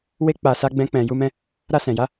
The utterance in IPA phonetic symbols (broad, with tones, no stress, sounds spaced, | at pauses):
w e˦ k͡p a˧ s a˦ ɡ͡b ɛ̃˦ k͡p ɛ̃˧ j u˦ m ɛ̃˦ | ɾ a˧ s ɛ̃˨ j a˨˦